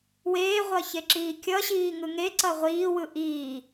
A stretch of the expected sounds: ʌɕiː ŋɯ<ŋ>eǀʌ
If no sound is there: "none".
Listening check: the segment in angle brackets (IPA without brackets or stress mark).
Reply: ŋ